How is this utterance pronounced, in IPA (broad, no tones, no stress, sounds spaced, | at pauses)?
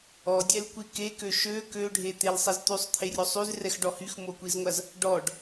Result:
ɔ dʲ ɛ l kʷ i k e k ø ʃ ø k ø ɖʱ e t̪ e l sˤ ɛ z t̪ y sˤ t̪ʰ e rʲ o sˤ y z r ɛ x ɖ ɔ h y x m o kʷ i z ŋʷ a z | ɖ ɔ ɖ